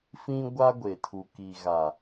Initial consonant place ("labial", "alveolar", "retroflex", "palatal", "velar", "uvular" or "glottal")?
labial